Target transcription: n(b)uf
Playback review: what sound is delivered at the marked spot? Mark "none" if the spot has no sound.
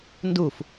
d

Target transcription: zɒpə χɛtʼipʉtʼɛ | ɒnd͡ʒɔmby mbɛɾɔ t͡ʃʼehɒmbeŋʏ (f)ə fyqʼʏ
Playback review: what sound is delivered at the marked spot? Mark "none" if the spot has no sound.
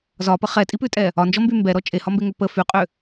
p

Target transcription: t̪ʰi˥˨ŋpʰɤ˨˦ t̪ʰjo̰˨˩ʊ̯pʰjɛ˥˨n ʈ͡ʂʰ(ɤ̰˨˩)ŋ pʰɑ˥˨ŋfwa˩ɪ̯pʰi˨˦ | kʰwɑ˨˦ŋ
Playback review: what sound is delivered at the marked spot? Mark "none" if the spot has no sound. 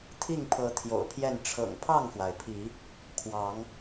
ɤ̰˨˩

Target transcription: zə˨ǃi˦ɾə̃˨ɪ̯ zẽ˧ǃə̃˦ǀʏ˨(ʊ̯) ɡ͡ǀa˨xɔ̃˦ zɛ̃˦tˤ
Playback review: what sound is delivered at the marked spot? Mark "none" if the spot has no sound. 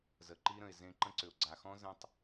ʊ̯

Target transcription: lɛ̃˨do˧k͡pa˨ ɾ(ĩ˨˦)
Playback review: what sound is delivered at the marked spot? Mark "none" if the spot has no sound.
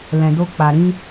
ĩ˨˦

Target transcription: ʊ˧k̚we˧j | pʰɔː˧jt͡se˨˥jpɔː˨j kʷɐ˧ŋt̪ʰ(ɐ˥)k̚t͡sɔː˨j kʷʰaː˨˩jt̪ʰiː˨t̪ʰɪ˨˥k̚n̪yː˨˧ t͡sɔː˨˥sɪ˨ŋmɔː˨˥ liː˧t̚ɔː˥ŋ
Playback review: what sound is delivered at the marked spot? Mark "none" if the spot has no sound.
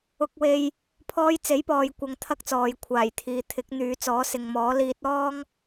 ɐ˥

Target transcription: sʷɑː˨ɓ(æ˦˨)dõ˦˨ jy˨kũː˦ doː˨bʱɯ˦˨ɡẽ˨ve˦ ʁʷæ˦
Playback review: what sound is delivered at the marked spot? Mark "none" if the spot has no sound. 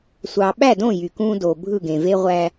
æ˦˨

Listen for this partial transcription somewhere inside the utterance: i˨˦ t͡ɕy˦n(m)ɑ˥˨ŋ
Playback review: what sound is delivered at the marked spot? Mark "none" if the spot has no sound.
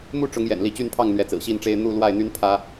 pʰ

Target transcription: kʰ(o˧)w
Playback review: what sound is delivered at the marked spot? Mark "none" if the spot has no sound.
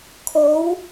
o˨˥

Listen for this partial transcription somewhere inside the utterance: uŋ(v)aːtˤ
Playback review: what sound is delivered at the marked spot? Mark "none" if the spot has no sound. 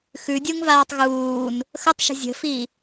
v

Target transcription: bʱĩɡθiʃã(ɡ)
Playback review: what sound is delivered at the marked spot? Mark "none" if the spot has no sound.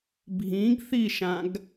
ɡ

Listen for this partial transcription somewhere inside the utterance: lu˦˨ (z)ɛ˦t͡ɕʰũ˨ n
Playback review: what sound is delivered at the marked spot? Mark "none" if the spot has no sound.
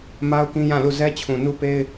z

